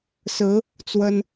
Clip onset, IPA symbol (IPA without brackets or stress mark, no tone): s